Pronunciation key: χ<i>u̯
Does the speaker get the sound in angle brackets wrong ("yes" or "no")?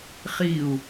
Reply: no